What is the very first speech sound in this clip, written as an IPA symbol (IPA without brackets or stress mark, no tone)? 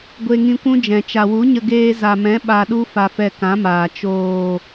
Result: ɡʷ